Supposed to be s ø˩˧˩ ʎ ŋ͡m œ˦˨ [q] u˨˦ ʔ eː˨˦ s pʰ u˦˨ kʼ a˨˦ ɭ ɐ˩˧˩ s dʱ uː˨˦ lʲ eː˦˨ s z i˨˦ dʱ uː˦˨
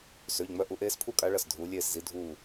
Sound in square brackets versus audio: incorrect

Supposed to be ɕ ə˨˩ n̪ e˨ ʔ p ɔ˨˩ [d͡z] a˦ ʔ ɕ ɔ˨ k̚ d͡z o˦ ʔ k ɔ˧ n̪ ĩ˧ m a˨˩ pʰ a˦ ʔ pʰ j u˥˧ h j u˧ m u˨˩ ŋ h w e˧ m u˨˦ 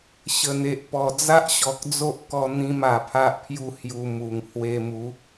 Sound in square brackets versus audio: correct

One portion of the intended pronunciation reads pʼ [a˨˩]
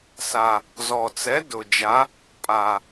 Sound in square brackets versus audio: correct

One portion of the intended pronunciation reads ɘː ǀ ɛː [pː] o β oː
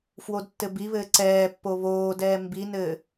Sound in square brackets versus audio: correct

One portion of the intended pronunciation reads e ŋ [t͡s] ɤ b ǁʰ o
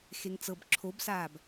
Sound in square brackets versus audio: correct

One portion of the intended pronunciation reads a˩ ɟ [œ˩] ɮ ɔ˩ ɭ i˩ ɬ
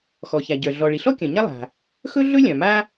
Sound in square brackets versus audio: correct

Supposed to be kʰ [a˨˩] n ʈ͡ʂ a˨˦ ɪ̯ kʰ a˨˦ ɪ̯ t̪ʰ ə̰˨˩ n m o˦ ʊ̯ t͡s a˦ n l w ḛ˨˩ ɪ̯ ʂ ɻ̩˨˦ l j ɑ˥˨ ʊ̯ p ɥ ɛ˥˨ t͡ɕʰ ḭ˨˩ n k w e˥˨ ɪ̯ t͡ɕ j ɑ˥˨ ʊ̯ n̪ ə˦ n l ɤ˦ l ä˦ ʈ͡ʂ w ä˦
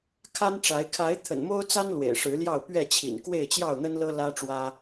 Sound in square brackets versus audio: incorrect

